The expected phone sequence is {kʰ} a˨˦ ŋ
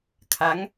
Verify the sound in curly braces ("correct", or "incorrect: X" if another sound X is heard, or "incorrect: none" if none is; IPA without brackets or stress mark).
correct